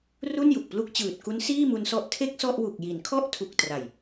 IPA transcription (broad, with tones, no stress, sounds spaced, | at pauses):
r u˥˩ n j u˨˩ k̚ p l u˦˥ k̚ t͡ɕ ɯː˨˩ t̚ k u˦˥ n s iː˥˩ m u˧ n s ɔ˦˥ ʔ tʰ e˥˩ k̚ s ɔ˥˩ ʔ w u˨˩ k̚ j i˩˦ n kʰ ɔ˥˩ ʔ tʰ u˨˩ k̚ t r a˨˩ j